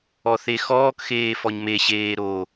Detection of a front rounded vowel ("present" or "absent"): absent